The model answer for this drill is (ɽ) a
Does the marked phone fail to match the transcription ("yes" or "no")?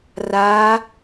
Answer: yes